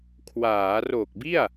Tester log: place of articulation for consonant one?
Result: velar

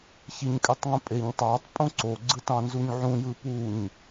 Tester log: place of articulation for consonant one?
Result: palatal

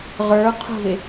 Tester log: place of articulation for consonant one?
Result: uvular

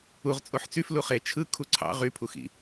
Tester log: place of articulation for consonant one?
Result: uvular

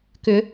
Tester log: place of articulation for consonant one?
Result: velar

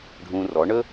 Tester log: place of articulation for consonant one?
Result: retroflex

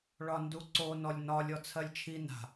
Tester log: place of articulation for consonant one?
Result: retroflex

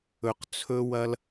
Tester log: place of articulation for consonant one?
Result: uvular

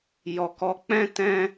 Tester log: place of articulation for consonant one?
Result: palatal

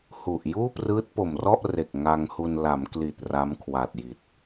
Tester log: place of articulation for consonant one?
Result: glottal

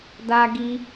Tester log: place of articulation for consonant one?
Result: alveolar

